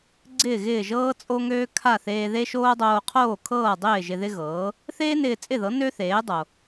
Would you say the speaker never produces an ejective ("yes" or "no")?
no